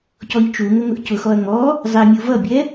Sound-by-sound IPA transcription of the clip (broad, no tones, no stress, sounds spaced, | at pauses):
c ɔ ʎ t͡ʃ u ŋ ə ŋ ʊ ʔ c ʊ x ɔ ɐ̯ ŋ ɔ | zˤ ɪ mʲ u v ʌ bʲ ɛ